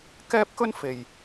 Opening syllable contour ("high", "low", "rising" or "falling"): high